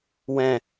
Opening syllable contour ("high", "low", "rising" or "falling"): low